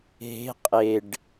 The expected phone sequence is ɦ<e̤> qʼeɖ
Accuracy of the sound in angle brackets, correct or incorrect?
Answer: correct